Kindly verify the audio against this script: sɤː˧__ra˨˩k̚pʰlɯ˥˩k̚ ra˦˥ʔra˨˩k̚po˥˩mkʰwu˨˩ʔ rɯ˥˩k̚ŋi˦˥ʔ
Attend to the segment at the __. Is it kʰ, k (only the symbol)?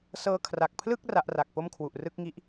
kʰ